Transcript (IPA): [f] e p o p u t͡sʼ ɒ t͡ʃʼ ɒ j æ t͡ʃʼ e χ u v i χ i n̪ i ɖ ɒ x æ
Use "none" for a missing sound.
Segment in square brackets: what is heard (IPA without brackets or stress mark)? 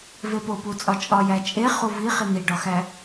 v